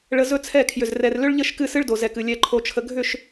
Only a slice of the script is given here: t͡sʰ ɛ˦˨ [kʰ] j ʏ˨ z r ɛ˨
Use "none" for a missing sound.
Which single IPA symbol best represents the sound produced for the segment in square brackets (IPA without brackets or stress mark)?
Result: kʰ